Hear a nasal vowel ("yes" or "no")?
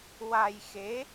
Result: no